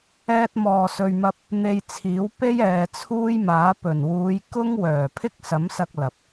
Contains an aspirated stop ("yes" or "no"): yes